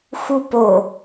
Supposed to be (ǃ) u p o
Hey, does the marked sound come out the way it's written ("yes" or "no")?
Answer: no